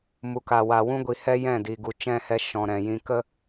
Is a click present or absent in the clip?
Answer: absent